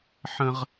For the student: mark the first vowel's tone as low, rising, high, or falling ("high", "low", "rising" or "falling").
high